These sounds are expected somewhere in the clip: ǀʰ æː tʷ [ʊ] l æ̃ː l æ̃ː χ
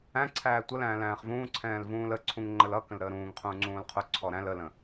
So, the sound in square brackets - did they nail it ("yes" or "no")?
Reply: no